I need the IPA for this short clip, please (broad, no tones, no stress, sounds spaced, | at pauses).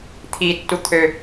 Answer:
t̪ʰ i tː u t̪ʰ ø